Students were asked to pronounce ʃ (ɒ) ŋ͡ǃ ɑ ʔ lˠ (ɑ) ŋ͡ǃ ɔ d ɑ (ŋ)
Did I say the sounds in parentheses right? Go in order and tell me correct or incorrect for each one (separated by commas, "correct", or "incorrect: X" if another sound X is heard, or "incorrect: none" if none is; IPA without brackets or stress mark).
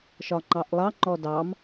correct, correct, incorrect: m